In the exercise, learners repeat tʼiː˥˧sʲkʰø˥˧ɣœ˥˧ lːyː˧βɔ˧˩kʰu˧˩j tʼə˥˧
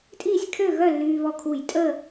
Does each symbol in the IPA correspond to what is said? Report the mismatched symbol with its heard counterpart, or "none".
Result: none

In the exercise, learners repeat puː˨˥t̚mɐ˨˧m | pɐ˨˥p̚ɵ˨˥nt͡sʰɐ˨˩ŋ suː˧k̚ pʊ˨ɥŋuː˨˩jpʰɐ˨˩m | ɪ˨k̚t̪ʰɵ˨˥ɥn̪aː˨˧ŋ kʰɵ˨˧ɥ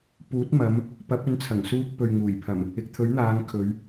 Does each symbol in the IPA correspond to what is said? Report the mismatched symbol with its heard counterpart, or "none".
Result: ʊ˨ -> ɵ˨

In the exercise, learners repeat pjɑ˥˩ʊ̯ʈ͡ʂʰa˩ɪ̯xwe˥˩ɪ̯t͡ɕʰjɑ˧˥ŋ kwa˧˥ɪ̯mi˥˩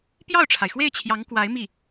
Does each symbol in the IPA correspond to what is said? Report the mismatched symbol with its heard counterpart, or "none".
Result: none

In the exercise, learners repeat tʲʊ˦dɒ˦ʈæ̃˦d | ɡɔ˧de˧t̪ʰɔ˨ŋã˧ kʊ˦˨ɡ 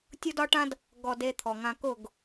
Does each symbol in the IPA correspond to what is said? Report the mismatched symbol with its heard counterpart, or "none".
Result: æ̃˦ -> ã˦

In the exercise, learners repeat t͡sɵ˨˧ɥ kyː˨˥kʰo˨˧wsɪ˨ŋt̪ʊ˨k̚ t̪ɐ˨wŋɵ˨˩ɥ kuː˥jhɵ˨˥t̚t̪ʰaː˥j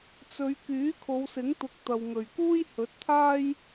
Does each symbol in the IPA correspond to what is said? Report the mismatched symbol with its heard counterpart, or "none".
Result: ɪ˨ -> ɪ˨˥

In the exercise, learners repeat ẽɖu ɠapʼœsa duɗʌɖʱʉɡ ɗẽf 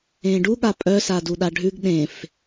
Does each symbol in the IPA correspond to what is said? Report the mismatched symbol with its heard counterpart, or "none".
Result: ʌ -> a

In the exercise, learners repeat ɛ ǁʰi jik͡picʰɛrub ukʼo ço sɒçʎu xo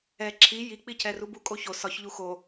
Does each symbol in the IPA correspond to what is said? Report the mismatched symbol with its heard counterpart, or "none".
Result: none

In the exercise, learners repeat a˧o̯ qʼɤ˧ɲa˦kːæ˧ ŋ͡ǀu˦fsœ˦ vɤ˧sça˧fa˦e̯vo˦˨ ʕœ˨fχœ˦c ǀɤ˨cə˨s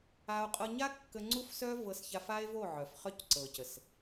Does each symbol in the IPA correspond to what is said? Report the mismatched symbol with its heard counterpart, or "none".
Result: æ˧ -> ə˧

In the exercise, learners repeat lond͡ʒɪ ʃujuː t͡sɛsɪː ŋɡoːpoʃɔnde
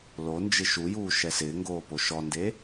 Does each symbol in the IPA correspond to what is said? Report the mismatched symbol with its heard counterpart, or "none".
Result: t͡s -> ʃ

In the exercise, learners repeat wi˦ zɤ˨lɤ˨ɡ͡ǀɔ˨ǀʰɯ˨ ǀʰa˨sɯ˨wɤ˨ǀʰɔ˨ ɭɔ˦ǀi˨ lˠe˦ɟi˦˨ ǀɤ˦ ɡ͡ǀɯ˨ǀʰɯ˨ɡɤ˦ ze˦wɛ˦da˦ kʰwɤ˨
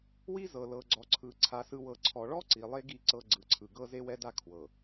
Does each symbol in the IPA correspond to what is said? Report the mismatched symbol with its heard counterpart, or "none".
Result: ɟ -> ɡ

